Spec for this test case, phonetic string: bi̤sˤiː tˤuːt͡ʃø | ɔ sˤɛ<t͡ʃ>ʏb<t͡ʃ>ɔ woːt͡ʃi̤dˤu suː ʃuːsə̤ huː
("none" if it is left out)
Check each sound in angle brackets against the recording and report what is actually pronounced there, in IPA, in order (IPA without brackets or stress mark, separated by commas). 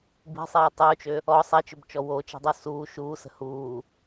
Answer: t͡ʃ, t͡ʃ